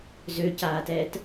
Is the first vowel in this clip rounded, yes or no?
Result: yes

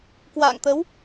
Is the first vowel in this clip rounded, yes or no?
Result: no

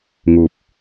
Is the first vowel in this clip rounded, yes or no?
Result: yes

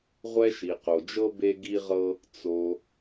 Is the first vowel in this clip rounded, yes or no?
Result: no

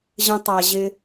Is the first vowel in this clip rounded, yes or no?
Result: no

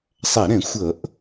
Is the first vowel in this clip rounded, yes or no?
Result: no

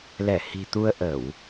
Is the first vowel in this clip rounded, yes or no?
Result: no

